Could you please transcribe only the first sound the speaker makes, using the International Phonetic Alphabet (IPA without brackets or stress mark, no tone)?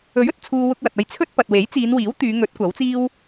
ɵ